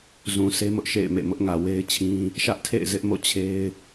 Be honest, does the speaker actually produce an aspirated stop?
yes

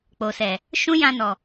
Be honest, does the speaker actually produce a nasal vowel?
yes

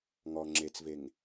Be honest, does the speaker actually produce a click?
yes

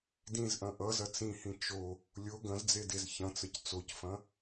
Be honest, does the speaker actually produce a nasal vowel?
yes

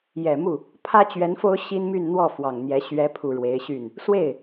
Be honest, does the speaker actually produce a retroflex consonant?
yes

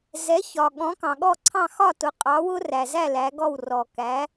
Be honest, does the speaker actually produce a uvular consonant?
yes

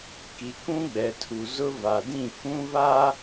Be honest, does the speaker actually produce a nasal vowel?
yes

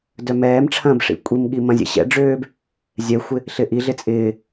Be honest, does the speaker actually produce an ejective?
yes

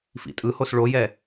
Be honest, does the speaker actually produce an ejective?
yes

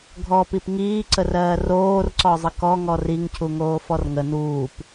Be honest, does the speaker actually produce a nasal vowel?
no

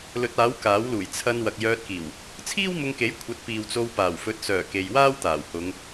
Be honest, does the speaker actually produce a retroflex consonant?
no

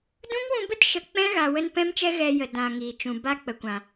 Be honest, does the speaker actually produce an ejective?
no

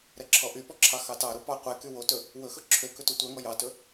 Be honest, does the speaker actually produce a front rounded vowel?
yes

